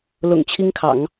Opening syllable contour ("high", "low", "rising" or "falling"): low